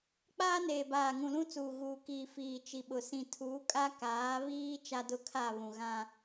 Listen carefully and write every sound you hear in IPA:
k͡p aː˦ n eː˨ b aː˨ ŋ ũ˨ l ũ˦ t͡s uː˨ ɣ uː˨ k iː˨ f iː˨ t͡ʃ i˨ ɓ ʊ˨ s ĩ˨ tʰ uː˨˦ kʼ a˦ k aː˨˦ β iː˦ t͡ʃ a˦ d ʊ˦˨ kʰ a˦˨ β ũ˨ ɣ ã˦

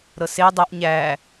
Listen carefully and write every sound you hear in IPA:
ɾ ɤ s e dˤ ə ʔ ɲ æ

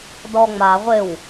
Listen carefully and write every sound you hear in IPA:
d ɔ ŋ͡m a ʁʷ ɪ w

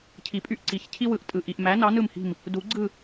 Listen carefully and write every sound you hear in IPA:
cʰ i˨˩˦ pʼ y˦˨ ʔ ǀ i˨˩˦ ç cʰ i˥ w ɯ˨˩˦ ʔ tʼ ɯ˨ ʔ i˨ ʔ m æ˨˥ n ɑ˨˥ n ɯ˦˨ m h i̤˦˨ m | d u˨˩˦ ɡ͡ǀ ɯ˦˨

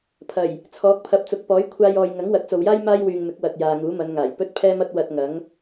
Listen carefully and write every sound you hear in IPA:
pʰ ɐ˨˩ j | t͡sʰ ɔː˨˥ k̚ pʰ ɐ˨ p̚ t͡s ʊ˨˥ k̚ p ɔː˨˥ j kʷʰ aː˧ j ɔː˨ j ŋ ɐ˨˥ ŋ w ɐ˨˥ t̚ t͡s o˨ w j aː˥ j m aː˥ j w yː˨ ŋ m ɪ˨˥ k̚ w ɐ˨ t̚ j aː˨ ŋ uː˨˥ m ɐ˨˧ n ŋ aː˨˩ j p ɵ˥ t̚ pʰ ɛː˥ m ɐ˥ t̚ w ɐ˧ t̚ ŋ ɐ˨˥ ŋ

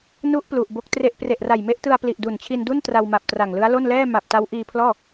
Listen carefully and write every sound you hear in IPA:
n u˦˥ ʔ p l u˨˩ ʔ b o˦˥ k̚ t r e˥˩ ʔ p r e˨˩ ʔ r a˨˩ j m e˦˥ ʔ t ɯ˧ a̯ p l i˨˩ ʔ d u˨˩ n t͡ɕʰ i˧ n d u˥˩ n t r a˧ w m a˨˩ p̚ t r a˨˩ ŋ l ɯ˦˥ a̯ l o˥˩ n l ɛː˥˩ m a˨˩ p̚ t a˦˥ w ʔ iː˧ pʰ l ɔː˥˩

